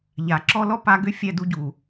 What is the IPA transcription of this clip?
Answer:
ʎa˨ǁɔ˦ lɔ˦pa˧ɡʏ˦ fʲɛ˧du˧ɟu˨

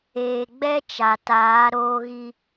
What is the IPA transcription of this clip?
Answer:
eː˨ɡ͡bɛ˦t͡ʃa˨taː˨˦ ɾoː˦ɣi˦

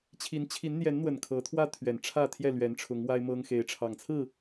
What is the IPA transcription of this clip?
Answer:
t͡ɕʰi˨˦nt͡ɕʰi˨˦nn̪jɛ˨˦nn̪wə˨˩n kʰɤ˨˦t̪ʰwä˦t̪ʰɥɛ˨˩n ʈ͡ʂʰä˥˨t̪ʰjɛ˥˨lɥɛ˨˦nʈ͡ʂʰʊ˨˦ŋ wa˦ɪ̯mɤ˦ŋ xe˨˦ɪ̯ʈ͡ʂʰɑ˨˩ŋt͡sʰɹ̩˥˨

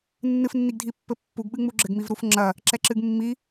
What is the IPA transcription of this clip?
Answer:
nːɨfnːiɡdʱipːɘ pːuɡɓɨŋ͡mu ɡ͡ǁɘɡmivɾufŋ͡ǁɐ | ǁɛǁɨɡmːi

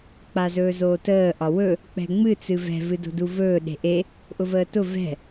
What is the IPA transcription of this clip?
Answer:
k͡pazɵːzoːtəː ʔɒwɵ | k͡pɛ̤ŋ͡mɨ t͡sɨvɛ̤ vɨdo̤duvɵː ɗe̤ʔe | ʔʊvəːtʊ vɛ̤

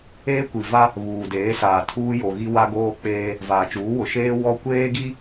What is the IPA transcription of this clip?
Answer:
eː˦kʷi˨va˦ | βuː˨deː˨˦saː˨ tʰuː˦jo˨ɣi˦ wa˦ɡoː˦k͡peː˦ | vaː˨t͡ʃuː˨˦wʊ˨ ʃeː˦ wɔ˦ kʷeː˦ɡi˦

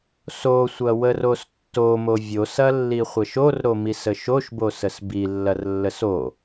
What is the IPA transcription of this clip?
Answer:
sosʷɐwəros tːomo vʲosɐlːiχʷɐʃ orɾomisə ʃoʃbosəs bilːɐrlːəs o

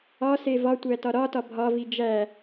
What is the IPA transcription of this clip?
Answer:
ɒse vɒtʷæ tɒɾɒtɒ bʱɒvi d͡ʒæ

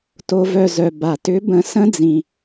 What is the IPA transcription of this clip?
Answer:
to˧ vœ˧˩zœ˩ ba˩tʏ˨˥ bə̃˧˩sə̃˦˥d͡zĩ˩

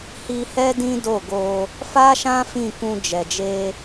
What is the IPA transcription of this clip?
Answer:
hi˧hɛ˦ dĩ˦ do˦˨ɡo˧ | fa˦ʃã˦ fĩ˦˨kũ˧d͡ʒɛ˨d͡ʒe˧

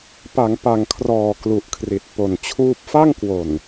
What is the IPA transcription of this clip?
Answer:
pa˩˦ŋ pa˨˩ŋkʰrɔː˨˩ klu˨˩ʔkʰri˨˩t̚po˨˩nt͡ɕʰuː˥˩p̚ fa˥˩ŋkwo˨˩n

